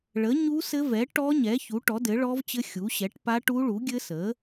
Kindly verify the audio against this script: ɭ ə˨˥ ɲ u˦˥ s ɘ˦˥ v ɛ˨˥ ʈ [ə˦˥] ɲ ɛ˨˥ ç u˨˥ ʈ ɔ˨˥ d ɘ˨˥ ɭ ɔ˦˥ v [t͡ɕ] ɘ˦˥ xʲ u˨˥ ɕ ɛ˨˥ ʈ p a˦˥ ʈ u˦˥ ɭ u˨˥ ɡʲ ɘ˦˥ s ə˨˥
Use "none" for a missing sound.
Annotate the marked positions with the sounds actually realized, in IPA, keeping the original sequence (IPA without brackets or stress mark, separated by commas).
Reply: ɔ˦˥, t͡ɕ